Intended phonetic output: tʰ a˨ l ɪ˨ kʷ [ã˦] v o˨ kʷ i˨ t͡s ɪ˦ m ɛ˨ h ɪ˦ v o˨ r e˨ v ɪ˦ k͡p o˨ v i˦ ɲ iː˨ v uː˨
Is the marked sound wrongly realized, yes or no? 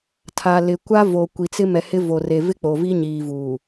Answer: yes